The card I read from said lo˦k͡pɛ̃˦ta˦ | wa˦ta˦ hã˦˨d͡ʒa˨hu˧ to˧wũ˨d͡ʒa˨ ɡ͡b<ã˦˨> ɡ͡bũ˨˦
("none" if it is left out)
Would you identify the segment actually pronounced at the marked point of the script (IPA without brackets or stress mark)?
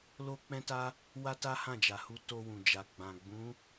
ã˨